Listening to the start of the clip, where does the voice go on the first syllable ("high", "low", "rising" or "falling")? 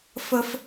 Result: high